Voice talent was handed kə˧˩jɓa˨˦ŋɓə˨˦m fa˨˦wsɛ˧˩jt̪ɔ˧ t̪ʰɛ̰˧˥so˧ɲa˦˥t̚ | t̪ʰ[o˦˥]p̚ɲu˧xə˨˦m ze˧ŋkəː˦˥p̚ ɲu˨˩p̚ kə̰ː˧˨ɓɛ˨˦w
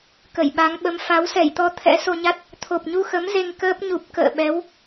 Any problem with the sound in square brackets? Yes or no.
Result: yes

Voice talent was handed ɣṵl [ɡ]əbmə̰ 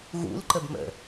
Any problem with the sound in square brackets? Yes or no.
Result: yes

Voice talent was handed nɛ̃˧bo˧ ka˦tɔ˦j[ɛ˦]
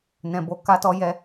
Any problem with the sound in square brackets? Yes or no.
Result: no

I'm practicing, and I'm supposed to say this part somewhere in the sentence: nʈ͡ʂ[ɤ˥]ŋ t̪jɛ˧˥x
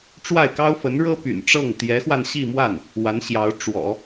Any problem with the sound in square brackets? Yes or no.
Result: yes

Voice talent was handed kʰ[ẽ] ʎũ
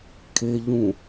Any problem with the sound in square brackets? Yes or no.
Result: yes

